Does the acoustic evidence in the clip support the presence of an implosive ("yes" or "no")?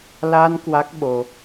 yes